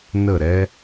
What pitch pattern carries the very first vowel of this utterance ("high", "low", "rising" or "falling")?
falling